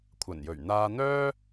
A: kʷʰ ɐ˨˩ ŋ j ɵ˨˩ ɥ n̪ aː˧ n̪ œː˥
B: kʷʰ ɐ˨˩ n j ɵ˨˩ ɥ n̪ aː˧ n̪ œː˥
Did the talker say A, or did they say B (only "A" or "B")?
B